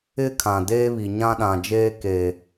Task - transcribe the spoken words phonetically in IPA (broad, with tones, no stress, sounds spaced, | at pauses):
ɪ˦ kʰ ã˨ d eː˦ β i˨ ɲ ã˦ ɗ ã˨ d͡ʒ eː˦ k e˨